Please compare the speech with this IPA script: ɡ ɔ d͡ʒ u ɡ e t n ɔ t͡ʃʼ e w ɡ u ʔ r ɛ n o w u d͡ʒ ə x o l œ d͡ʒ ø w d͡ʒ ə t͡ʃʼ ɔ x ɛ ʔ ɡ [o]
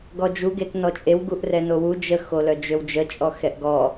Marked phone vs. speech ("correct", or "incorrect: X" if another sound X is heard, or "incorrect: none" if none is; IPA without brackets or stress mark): incorrect: ɔ